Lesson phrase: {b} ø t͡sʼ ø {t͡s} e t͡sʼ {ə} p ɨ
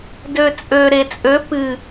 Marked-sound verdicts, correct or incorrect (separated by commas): incorrect, incorrect, incorrect